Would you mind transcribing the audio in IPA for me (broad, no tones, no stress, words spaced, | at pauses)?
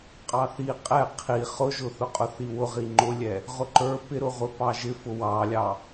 qʼɑθi qʼɛ qʰi χʊʒʊ θʊqʼʊθiwʊ ʁiŋ͡ǃʊlʲɛ | ʁʊǃə˞ pɪɾʊʁʷɪ pɑʒɪfʊ wɑlʲɑ